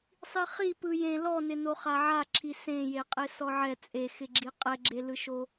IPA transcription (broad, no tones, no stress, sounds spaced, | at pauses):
sˤ i χ i p ɯ j ẽ l ɔ n ɪ n o χ a ʕ a ǁʰ i s ẽ j e qʼ e s ɔ ʕ ɛ t͡sʼ e x ɪ ɡ͡ǁ i qʼ ɛ ɡ͡ǁ e l ɯ ʃ o